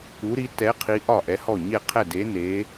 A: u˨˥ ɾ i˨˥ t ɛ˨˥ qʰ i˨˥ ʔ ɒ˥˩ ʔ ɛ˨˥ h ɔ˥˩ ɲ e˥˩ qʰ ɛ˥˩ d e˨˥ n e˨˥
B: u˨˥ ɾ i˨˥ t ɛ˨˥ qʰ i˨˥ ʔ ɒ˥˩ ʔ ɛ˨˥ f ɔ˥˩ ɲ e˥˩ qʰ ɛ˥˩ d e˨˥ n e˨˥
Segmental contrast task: A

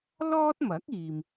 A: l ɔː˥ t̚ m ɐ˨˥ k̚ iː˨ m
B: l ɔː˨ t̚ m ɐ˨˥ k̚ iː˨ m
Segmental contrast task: A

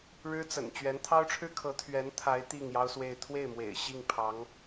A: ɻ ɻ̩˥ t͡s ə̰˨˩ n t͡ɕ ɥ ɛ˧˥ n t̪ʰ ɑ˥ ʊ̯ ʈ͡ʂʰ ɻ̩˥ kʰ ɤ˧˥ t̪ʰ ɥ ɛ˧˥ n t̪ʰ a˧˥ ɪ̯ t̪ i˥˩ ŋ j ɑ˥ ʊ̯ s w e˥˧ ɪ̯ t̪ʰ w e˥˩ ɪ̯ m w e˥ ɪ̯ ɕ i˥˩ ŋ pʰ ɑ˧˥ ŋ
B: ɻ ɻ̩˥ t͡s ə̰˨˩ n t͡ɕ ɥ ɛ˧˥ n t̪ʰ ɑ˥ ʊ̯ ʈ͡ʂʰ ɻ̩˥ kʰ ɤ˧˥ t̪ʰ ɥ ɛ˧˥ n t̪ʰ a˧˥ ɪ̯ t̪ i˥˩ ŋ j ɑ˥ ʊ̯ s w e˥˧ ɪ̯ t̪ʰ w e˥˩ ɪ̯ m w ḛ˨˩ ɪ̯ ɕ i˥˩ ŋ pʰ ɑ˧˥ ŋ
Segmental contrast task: B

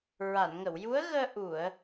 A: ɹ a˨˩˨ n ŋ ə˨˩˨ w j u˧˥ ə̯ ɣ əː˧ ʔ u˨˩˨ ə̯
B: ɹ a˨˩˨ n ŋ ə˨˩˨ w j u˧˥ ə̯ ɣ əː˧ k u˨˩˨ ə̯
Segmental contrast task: A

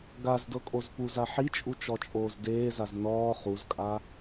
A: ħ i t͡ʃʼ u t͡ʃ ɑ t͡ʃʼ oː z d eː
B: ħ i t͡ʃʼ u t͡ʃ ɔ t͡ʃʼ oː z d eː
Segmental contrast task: B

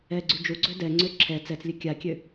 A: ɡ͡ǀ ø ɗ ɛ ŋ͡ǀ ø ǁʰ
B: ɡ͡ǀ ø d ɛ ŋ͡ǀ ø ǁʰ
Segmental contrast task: B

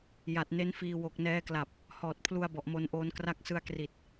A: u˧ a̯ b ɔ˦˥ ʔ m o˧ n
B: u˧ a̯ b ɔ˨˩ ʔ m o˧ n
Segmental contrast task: B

